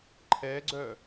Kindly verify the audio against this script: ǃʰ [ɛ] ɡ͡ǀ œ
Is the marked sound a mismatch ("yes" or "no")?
no